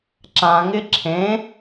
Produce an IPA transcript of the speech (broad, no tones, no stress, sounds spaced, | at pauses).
ǁ ã ŋ ɪ ǁʰ ẽ